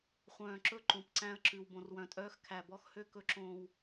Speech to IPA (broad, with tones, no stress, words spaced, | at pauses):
χʷœ̃ː˨ ǁɵ˦ ǃõ˨pǀæ̃˦ə̯ ǁʉ˨w bõ˨rwœ̃˨tʼœː˦x kʰæ˨bɔ˦xhø˦ kɵ˦ǁõː˦w